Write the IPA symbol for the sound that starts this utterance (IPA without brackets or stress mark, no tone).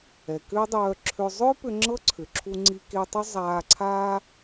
ɛ